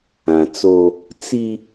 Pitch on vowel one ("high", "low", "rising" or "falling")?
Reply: low